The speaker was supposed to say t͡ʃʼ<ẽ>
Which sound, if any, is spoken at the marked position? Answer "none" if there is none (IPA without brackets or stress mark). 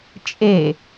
e